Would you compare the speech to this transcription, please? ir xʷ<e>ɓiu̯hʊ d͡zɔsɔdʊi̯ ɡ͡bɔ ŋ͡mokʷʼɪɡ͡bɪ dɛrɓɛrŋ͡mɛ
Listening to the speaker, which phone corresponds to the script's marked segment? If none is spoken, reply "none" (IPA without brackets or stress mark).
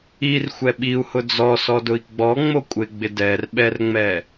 ɛ